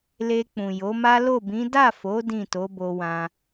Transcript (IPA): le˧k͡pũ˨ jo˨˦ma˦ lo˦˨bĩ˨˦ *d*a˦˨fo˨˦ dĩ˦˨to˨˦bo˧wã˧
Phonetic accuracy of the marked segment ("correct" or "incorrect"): correct